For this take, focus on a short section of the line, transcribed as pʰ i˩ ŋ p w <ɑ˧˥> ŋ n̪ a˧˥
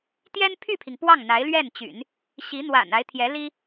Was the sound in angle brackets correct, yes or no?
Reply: no